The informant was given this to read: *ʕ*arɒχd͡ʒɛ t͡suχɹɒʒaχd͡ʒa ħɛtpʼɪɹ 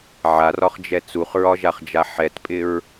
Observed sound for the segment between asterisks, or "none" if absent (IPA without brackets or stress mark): ʕ